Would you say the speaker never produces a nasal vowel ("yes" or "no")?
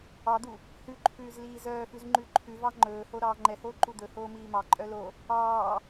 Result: yes